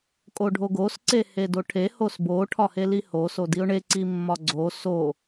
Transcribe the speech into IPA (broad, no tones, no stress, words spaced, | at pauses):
kʼoɖʱoɡos ǀehedoʈʰe hosbo ʈʰɒheliho sodiʊ̯ɳe ǀimːɒɡ͡ǀo so